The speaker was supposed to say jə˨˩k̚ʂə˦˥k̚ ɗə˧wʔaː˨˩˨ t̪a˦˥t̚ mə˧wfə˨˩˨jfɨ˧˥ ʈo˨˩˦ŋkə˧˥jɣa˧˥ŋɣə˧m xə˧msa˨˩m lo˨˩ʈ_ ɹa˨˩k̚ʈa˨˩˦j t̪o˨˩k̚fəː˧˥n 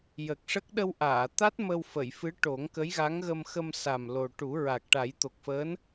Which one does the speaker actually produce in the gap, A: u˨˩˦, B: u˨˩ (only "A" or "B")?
A